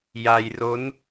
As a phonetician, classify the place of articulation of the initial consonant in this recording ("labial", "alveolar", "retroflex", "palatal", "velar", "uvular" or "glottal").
palatal